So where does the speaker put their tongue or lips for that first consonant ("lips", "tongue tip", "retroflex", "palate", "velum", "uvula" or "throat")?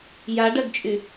palate